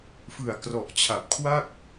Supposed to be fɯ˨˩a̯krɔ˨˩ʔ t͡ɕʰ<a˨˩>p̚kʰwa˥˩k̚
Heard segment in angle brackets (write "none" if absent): a˨˩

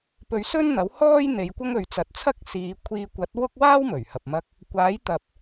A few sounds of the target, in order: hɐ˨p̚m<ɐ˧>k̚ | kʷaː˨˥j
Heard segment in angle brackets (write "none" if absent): ɐ˧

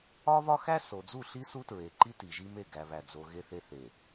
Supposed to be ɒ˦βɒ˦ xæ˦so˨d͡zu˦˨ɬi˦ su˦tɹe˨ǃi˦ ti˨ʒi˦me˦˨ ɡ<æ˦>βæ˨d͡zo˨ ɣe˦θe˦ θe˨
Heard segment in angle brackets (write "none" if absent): æ˨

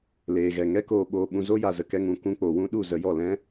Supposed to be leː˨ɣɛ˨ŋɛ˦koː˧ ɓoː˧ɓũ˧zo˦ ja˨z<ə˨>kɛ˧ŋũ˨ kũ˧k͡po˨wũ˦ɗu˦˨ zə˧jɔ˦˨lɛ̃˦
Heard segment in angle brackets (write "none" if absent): ə˨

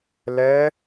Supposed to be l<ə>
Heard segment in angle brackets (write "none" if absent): ɛ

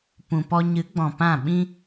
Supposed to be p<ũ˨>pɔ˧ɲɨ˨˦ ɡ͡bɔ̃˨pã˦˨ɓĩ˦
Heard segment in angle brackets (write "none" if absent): ũ˨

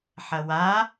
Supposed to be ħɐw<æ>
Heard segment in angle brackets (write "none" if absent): a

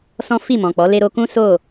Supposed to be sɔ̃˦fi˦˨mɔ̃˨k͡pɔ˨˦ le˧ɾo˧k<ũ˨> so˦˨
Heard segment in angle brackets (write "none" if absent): ũ˦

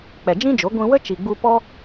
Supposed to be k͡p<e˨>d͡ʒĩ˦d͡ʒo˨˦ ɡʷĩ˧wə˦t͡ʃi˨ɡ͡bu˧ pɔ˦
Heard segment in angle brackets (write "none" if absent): ɛ˨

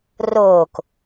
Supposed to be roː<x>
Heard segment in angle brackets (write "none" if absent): k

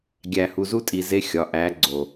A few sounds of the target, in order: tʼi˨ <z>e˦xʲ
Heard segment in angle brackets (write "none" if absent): z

